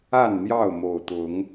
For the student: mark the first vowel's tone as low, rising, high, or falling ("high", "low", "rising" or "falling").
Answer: falling